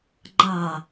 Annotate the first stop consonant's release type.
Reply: click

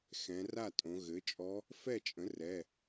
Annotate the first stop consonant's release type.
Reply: ejective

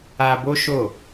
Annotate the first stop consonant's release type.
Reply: plain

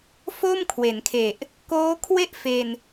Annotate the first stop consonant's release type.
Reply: aspirated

